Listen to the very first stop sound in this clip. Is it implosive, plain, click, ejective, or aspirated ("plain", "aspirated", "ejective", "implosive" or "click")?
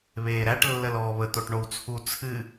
plain